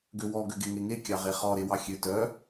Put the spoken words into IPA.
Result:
ɡ ø w ɔ ɡ ø ɡ e ŋ e ŋ e kʲ ɑ ʁ e χ ɔ ɾ e w ɑ xʲ ø t œ

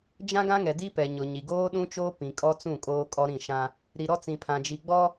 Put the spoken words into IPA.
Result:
d͡ʒ ã˦ ɡ ã˦ ŋ ɛ˨ d i˦ p ɛ˨ ɲ ʊ˨ ɲ i˨ ɡ oː˦ ɗ ũ˦ t͡ʃ oː˦ p ĩ˨ kʼ ɔ˦ t͡s ũ˦˨ kʼ oː˦ kʼ ɔ˦ ɾ ĩ˦˨ ʃ ã˦ | ɾ i˨ ɾ ɔ˦ t͡s ĩ˨ pʰ ã˨ d͡ʒ i˨ ɡ͡b ɔ˦

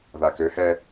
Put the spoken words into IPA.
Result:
ð a k ø h ɛ

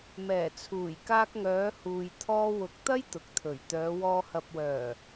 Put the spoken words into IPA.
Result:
m ɛː˨˩ t͡sʰ uː˨˩ j k aː˧ k̚ ŋ œː˨˧ h uː˨ j t̪ʰ ɔː˧ w ʊ˨˥ k̚ t̪ ɐ˥ j t̪ ʊ˨ k̚ t̪ʰ ɵ˨˩ ɥ t̪ œː˨˧ w ɔː˧ h ɐ˨ p̚ w œː˨˩

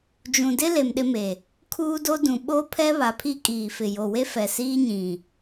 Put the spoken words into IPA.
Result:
d͡ʒ ũ˨ d ɪ˦ l e˨ m ɗ ɪ˦ m e˨ | kʰ uː˦ d o˦ d ũ˨ ɓ o˦ pʰ ɛ˦ β a˨ pʰ i˦ kʼ iː˨ f ɪ˨ j o˨ w e˦ f ɛ˨ s iː˦ ɲ ĩ˨

